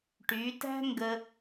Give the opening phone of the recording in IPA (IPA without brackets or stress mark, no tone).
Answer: ʈ